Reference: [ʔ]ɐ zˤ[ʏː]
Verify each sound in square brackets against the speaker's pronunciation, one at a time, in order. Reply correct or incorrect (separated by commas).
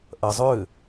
correct, correct